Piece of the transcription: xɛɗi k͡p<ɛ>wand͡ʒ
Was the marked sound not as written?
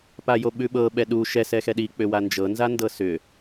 yes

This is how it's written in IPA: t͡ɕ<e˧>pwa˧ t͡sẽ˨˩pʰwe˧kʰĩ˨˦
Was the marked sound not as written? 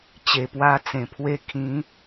yes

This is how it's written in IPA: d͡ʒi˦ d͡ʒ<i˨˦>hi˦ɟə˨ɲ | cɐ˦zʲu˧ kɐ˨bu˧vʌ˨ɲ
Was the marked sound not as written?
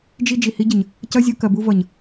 yes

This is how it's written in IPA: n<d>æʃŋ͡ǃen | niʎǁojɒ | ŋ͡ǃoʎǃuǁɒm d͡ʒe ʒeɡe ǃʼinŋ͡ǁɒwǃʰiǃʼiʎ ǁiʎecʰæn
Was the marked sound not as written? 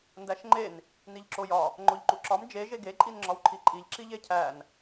no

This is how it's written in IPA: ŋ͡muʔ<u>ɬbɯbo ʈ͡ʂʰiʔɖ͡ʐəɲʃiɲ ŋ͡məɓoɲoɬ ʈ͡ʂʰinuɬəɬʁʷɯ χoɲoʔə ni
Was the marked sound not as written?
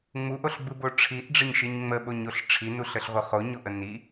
yes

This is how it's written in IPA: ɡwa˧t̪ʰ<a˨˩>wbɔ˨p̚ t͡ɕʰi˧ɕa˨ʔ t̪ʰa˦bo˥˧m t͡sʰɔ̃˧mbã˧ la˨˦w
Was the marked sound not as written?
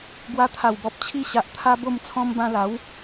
no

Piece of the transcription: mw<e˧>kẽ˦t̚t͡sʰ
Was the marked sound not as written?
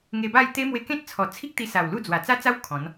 no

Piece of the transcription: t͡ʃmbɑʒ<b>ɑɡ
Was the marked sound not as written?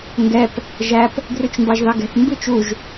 yes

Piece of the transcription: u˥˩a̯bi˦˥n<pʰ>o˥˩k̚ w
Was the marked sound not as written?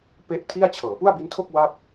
yes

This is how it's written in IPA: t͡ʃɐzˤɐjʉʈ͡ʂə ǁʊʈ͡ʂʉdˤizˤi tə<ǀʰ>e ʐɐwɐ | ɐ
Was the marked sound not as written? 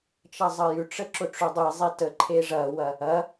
yes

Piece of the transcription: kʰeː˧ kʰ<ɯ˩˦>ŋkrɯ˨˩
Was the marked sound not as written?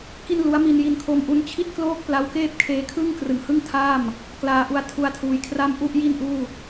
yes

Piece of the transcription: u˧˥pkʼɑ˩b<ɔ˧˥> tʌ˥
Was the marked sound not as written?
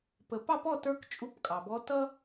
no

